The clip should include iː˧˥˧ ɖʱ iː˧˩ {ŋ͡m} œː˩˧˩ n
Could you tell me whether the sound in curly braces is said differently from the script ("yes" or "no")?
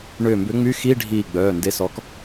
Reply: yes